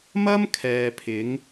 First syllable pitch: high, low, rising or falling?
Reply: high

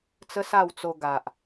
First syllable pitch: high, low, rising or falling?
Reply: high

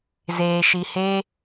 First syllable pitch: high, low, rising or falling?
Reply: low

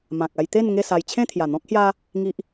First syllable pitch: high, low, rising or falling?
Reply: low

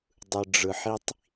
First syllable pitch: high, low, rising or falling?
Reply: low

